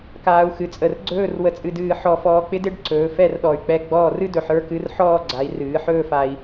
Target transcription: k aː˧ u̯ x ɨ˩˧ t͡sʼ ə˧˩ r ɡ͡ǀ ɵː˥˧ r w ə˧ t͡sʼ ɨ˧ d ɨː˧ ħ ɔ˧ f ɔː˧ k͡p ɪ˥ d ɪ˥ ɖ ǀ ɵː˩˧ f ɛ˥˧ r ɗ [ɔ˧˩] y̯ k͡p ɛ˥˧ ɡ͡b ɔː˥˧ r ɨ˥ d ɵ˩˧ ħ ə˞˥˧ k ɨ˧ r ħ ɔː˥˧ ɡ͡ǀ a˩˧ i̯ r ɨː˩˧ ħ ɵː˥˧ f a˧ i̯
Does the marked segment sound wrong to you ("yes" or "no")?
no